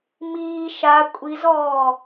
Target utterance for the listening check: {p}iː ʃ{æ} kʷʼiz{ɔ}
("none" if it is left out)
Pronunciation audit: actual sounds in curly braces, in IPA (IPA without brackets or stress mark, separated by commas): m, a, ɔː